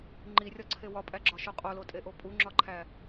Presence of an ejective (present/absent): present